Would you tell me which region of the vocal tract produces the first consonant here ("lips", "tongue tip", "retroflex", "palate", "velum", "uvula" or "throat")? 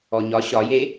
palate